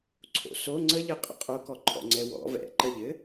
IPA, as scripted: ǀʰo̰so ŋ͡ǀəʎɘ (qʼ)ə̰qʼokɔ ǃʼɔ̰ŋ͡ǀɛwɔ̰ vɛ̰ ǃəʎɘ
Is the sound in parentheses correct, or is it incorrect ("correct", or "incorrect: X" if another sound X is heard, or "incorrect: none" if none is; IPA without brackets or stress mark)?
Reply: correct